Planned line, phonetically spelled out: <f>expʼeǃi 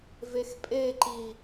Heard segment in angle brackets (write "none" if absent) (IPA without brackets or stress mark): v